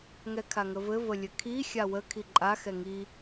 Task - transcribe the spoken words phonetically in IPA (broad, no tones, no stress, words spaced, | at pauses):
ŋɛkʰaŋəvɘ vəlʲɘkʰi xʲawə kʰiǃʼa xɛŋi